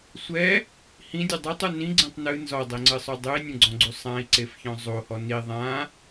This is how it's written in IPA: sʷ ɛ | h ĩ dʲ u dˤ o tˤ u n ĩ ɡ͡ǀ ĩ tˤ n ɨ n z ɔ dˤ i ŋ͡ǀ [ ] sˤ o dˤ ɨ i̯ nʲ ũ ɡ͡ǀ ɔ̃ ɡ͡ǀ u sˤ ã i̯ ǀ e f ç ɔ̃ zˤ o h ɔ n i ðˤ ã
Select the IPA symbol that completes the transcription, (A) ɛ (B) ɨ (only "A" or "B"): B